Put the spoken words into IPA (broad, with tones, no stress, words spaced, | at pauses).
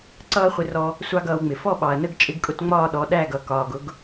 ǀʌː˦χʷɪ˧rɔ˧ | sʷɑ˦ɡʌː˧wŋ͡mɪ˨ fɔ˦˨ɓɑ˨ɐ̯nə˦˨ɡ t͡ʃʼɪ˧ɡkʼʊ˧tŋ͡mɒː˦˨ɗɔ˨˦ ɗæ˦˨ɡʌ˨ kɒː˨ɡʊ˦ɡ